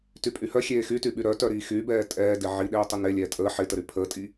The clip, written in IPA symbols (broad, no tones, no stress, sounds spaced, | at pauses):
t y pʼ y h œ xʲ eː x y t y ɓ y ɾ œ t œ ɾ iː x y b ɛː tʼ ɛː d ɪ ʕ i ɗ eː tˤ ɪ n e lʲ ɛː tʼ əː ħ ɪ t ə ɾ y pʰ əː tʼ i